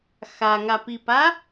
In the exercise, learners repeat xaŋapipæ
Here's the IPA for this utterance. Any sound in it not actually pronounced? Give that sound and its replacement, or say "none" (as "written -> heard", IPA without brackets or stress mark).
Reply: æ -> a